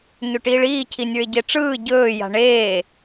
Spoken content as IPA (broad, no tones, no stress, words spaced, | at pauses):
ɲɵʈiːɭiː cʰinʲə˞ɪ̯ɟeʈ͡ʂɯː ɟɵː ja̤ɳeː